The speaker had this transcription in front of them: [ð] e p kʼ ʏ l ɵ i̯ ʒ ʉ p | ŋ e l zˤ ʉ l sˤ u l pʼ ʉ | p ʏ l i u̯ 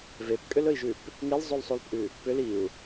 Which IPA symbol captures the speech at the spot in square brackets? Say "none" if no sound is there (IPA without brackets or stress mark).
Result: v